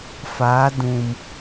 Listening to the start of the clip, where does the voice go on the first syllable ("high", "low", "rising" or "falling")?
rising